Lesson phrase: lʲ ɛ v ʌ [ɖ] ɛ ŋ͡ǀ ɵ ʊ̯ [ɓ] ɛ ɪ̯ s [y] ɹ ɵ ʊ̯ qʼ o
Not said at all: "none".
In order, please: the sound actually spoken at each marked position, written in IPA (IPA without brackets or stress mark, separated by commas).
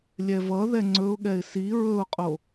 ð, ɠ, i